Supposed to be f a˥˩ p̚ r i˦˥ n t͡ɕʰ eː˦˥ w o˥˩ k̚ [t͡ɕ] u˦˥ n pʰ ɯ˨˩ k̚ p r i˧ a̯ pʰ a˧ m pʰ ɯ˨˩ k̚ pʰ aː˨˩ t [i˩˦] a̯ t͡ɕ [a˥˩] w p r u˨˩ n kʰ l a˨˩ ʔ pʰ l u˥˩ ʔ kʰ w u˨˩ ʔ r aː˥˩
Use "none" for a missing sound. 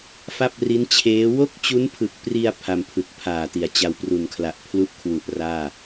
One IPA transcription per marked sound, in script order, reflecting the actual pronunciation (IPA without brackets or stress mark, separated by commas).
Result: t͡ɕ, i˩˦, a˧